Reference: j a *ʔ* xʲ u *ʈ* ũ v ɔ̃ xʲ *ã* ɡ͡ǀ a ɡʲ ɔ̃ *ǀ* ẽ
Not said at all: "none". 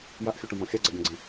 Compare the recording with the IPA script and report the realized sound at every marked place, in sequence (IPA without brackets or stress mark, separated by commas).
ʔ, ʈ, a, ɡ͡ǀ